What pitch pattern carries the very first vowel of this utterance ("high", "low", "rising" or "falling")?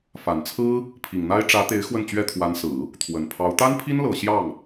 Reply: low